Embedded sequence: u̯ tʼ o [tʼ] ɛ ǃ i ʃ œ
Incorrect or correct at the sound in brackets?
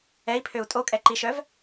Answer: incorrect: kʼ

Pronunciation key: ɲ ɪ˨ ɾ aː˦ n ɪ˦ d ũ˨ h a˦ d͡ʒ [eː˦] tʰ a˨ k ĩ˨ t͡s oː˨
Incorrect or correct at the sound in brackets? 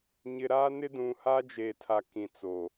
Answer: incorrect: eː˨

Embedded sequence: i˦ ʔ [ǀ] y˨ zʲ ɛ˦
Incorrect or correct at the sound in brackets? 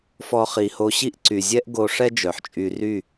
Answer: correct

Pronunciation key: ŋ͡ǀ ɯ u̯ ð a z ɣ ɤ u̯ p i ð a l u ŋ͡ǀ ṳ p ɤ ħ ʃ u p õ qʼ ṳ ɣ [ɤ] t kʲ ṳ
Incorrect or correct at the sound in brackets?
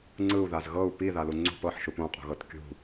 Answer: correct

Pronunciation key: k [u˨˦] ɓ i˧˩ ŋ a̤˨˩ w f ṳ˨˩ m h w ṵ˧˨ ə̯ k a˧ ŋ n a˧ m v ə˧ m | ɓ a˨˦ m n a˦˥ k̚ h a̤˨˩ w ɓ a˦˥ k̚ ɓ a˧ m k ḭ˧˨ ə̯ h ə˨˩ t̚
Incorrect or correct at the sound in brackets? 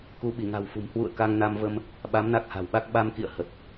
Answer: correct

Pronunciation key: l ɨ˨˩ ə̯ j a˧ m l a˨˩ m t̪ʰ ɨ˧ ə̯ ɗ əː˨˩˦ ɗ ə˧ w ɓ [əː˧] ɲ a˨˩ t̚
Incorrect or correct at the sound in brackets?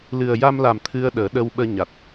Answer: correct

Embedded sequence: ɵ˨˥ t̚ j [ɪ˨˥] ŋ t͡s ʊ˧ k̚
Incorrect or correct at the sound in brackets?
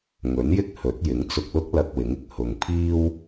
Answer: correct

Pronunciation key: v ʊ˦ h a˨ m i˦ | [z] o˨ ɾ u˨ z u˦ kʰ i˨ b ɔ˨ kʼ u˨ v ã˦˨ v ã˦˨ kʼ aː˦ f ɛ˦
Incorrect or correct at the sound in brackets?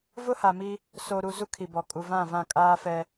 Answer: incorrect: s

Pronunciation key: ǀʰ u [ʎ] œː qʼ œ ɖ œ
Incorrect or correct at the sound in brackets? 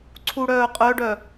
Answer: incorrect: ɽ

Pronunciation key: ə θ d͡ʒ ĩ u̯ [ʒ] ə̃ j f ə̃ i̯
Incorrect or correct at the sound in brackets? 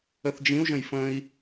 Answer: correct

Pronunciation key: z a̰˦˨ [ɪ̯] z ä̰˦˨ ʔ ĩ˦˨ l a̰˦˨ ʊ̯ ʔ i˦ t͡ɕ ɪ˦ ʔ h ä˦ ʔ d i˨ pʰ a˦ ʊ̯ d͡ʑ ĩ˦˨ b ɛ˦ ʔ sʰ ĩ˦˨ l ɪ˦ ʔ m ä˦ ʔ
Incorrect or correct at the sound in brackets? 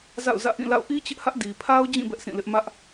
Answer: incorrect: ʊ̯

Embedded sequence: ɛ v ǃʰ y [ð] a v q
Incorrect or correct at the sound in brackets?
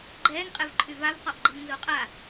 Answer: incorrect: v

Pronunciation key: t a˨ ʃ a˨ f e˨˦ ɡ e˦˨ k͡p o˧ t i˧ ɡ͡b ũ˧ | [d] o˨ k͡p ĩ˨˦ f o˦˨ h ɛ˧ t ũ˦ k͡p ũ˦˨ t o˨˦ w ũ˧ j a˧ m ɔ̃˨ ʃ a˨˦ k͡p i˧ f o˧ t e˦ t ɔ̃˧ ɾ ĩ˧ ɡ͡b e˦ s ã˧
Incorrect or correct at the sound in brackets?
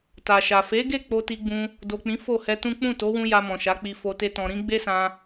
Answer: correct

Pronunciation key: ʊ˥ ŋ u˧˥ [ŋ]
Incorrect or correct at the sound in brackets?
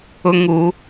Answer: incorrect: none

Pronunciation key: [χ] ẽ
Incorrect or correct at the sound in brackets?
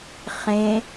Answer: correct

